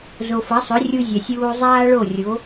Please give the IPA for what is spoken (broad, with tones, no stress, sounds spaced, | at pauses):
z o˩ f ɐ˩˥ sˤ ɵ˩˥ rʲ u˧ zʲ ɐ˩ sʲ uː˧ zˤ aː˥ ɭ o˥˩ rʲ o˩˥